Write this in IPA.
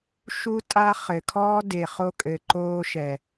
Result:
ʃ u˧ tʼ a˧ χ ɘ˨ kʰ ɔː˦ d e˨ χ o˧ kʼ ɘ˨ ǃ oː˧ ʃ ɛ˨

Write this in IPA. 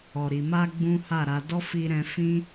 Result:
ɔ˨ ɾ i˨ m a˧ ɡ͡b ũ˦ h a˦˨ ɾ a˧ d ɔ˦ f i˧ ɾ ɛ̃˧ f ĩ˦

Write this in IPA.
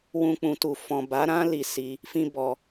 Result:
w ũ˧ k͡p ũ˨ t u˨ f ɔ̃˨ b a˨˦ ɾ ã˦ l i˧ s i˧ | f ĩ˧ b ɔ˨

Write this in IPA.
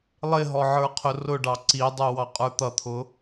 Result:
lˠ ɪ ɦ ɔ ʕ ə˞ qʰ ʊ r ʊ ɖ ɑ ǀ i dˤ u w ɑ qʼ ə˞ t̪ ʌ t̪ʰ ʊ

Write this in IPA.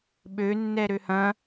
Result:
ɓ ø nː ɛ ɾ ø h ɐ̃

